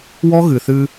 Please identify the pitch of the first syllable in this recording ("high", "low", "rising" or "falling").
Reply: high